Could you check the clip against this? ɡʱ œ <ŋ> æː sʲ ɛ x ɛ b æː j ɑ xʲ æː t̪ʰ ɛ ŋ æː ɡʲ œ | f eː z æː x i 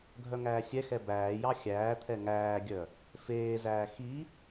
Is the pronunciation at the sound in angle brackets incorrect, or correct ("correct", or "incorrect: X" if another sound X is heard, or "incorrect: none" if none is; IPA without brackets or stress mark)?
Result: correct